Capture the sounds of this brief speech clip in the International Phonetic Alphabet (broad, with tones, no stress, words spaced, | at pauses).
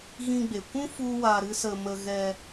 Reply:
ɣĩ˧ɡ͡be˨kʷũ˦ fu˦wa˧ɾɨ˦sə˧ mə˧ɣɛ˧